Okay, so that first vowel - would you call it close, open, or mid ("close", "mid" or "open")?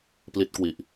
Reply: close